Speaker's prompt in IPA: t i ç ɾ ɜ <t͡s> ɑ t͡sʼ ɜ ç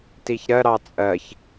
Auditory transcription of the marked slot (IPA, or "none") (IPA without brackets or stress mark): ɾ